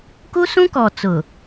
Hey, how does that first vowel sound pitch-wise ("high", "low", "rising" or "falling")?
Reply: high